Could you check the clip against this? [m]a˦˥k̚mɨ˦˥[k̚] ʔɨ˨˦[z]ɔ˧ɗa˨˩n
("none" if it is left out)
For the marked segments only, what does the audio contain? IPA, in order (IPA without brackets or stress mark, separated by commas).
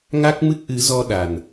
ŋ, k̚, z